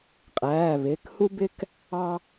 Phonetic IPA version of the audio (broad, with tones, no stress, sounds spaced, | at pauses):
qʼ æː˩˧˩ β ɪː˩˧˩ k h u˥ b ɪ˥ k | ɑ˥